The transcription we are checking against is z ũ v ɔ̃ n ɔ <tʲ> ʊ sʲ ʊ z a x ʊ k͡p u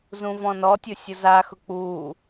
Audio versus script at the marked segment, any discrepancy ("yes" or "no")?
no